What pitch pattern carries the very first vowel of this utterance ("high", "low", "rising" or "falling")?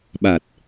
low